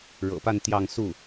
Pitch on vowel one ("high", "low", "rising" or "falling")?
low